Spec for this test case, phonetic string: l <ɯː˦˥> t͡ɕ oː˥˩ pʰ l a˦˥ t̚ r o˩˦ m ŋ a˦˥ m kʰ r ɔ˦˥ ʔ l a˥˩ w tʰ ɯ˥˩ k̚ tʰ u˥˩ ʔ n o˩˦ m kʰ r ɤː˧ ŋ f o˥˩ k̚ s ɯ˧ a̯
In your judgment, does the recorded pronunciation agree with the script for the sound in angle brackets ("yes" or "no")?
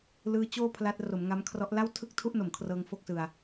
yes